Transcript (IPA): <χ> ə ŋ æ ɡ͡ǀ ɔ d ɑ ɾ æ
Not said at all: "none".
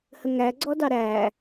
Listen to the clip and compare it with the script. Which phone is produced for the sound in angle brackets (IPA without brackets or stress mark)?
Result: h